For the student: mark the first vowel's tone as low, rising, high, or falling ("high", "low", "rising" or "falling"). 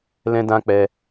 high